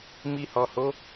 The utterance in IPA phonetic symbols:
mi˧hɔ˨ho˨˦

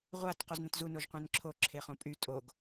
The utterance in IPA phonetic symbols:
ʁʷat qoznə̃tzu noʒqʷẽnǁʰo ǁʰeχõpʼy tʼoɡ

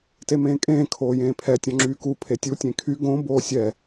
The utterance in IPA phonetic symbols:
temẽːkʼẽː kʰoːjẽːpʰɛ tʲɔ̃ŋ͡ǁyːku pʰetʲu tʲẽkʰy ɡõ boːsʲɛ

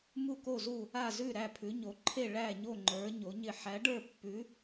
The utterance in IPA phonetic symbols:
mu˥˧ko˥˧zu˥˧ | a˥˧zʉ˥˧ ɾæ˥˧pʰʉ˧˥ɲo˧˥ǃʰe˥˧ ɭæ˥˧ɲo˥˧ŋ͡ǃə˞˧˥ ɲo˧˥ɲɪ˥˧ ħæ˧˥ɖə˞˥˧pːʉ˧˥

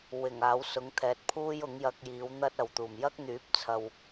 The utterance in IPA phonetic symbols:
wɪ˨˩ŋaː˨˥w sʊ˨˧ŋt̪ʰɛː˨t̚pʰuː˥j ʊ˨˥ŋjɐ˧k̚jiː˨˧w n̪ɐ˥t̚ɐ˨wt̪uː˨˩m jɐ˥k̚n̪yː˨˥p̚t͡sʰɐ˨w

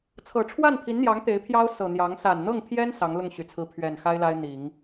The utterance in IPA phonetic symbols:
t͡sʰɤ˨˩ʈ͡ʂʰwa˥˩npʰi˧˥nn̪jɑ˧˥ŋ t̪e˧˥ɪ̯pʰjɑ˥ʊ̯ sɤ˨˩n̪jɑ˧˥ŋ sa˨˩nn̪ɤ˥˩ŋpʰjɛ˥n sɑ˧˥ŋlʊ˥˩ŋɕy˨˩t͡sʰɹ̩˧˥ pʰɥɛ˨˩nxa˥ɪ̯ la˥ɪ̯n̪i˨˩˦ŋ

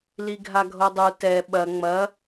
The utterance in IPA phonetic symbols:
liɡʱaɡʱodˤu tɛ ɓɐ ŋ͡mɐ

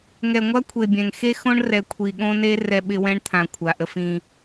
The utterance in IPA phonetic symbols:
ŋɛ˨ŋʷa˦kʷʰe˨bʲɛ̃˨ŋ xe˦xõ˦ɳ rɛ˨ kʷʰi˨ɠõ˦ne˦ rɛ˦ɓɪ˦wɛ̃˦ɳt̪ʰã˨ kʷʰa˨ʔə˦f ĩ˦

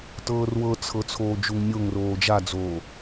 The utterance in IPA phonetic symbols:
tɤːrwɤt͡sʰɤ t͡sʰoːd͡ʒuŋnʲoŋroː d͡ʒad͡zoː

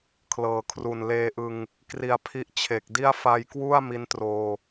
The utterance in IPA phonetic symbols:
kʰlɤː˨˩kʰru˨˩n leː˧ʔɯ˧ŋ | kri˧a̯pʰi˦˥ʔt͡ɕʰe˨˩k̚di˥˩a̯ fa˧jkwu˥˩a̯ mi˦˥ntroː˧

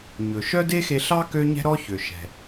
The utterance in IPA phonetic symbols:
ɲɵ˩ ʃœ˥de˥xe˧ɬɑ˥ kø˥ɲɛ̤˥ɾɔ˥çø˩ ʃɛ̤˩

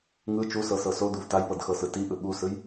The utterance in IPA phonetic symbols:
ŋɯ t͡ʃusɤsɤ sod̪uv tajpɤdxɤsɯ tiʔɯ ɠusɯj

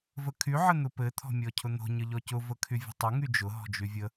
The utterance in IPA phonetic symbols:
vəkʰy ʕən̪ʊpɘ t̪ʰɔ̤mʲɔcʰʊn̪o̤ ɲəʎɔcʊ vəkʰyvʲə̤tˤə ŋyd͡ʒʊ ɦɔ̤d͡ʒyvʲə

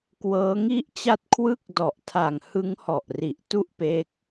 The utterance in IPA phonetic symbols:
kwɤː˦˥ŋi˥˩ʔt͡ɕa˥˩t̚ kʰwɯ˥˩k̚ dɔ˨˩ʔtʰa˨˩ŋ hɯ˦˥ŋhɔ˨˩ʔri˨˩ʔ tu˥˩ʔpe˦˥k̚

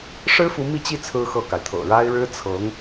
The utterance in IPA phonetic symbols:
ʂɻ̩˥fu˧˥ mi˥˧t͡ɕi˥˩ t͡sʰɹ̩˥xɤ˥˩ka˩ɪ̯ t̪ʰɤ̰˨˩ɻa˥ɪ̯ ɻɻ̩˥ t͡sʰɤ˧˥ŋ

